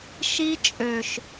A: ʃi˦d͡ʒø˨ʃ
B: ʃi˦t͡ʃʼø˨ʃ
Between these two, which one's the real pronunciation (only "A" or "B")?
B